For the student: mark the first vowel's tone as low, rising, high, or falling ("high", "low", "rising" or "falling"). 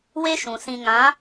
high